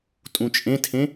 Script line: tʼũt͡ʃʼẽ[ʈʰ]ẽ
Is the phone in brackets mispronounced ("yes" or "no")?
yes